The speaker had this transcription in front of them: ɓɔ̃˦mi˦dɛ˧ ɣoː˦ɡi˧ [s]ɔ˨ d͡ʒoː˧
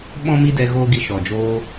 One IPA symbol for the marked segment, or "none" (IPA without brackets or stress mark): ʃ